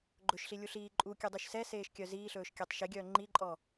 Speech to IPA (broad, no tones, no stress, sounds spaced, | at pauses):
ɡ͡ǃ ɵ ʃ ɬ i lʲ u ɬ iː ǃʼ u kʲ ʉ dˤ y ʃ s ɛ s eː ʃ kʲ œ z iː ɬ ɵː ʃ kʲ æ tˤ ʃ e ɡʲ œː ŋ͡ǃ i ǃʼ ɔ